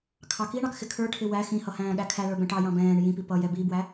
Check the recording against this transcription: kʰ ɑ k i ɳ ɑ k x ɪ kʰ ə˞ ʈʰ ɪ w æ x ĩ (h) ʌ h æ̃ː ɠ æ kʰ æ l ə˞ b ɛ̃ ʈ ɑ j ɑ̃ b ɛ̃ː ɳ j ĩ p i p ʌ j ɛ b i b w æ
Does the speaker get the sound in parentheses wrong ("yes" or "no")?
no